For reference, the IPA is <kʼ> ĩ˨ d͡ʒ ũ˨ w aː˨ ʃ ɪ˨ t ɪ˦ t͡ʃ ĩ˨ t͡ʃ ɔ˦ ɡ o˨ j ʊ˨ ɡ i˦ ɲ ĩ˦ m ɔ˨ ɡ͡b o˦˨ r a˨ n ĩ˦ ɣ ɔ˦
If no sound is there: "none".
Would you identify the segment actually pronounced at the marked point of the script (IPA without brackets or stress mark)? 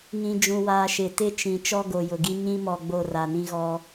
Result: ŋ